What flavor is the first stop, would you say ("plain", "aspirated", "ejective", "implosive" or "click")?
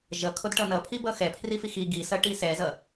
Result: aspirated